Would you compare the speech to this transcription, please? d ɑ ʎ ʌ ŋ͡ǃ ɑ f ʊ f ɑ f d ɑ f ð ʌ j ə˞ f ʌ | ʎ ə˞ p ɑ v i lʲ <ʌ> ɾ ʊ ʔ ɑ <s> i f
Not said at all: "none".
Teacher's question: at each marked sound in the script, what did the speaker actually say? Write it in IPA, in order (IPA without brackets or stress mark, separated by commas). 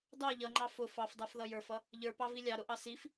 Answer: ɑ, s